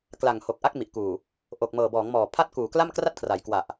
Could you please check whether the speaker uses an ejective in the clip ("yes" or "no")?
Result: no